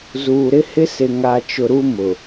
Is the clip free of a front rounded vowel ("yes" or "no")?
yes